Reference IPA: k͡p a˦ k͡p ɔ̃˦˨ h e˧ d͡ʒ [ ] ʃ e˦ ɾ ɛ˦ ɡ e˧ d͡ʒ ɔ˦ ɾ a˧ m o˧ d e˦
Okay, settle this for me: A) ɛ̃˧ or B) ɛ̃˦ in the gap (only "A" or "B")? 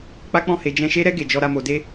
A